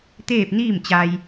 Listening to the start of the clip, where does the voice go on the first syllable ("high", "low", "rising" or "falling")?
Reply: falling